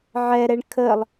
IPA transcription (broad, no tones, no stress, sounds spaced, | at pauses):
ʕ ɛ ɾ ɛ ɳ kʰ ə lˠ